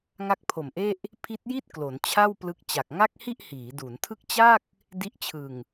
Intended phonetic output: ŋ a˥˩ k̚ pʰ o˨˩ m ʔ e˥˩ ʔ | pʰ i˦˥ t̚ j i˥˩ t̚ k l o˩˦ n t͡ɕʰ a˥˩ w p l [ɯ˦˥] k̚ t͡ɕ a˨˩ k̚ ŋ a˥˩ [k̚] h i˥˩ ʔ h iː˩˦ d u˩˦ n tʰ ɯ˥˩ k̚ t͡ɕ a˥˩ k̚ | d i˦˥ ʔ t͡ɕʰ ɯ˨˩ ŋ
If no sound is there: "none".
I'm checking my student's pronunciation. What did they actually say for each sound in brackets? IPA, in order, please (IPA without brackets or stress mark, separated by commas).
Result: ɯ˦˥, k̚